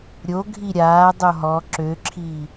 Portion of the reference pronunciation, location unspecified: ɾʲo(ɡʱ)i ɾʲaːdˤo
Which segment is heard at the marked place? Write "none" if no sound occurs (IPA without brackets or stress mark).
ɡʱ